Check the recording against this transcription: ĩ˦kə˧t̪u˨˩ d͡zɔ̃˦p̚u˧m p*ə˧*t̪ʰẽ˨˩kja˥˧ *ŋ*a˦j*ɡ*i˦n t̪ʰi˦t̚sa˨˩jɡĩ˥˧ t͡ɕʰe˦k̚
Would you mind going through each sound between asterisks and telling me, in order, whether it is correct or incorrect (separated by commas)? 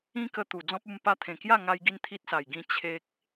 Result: incorrect, correct, correct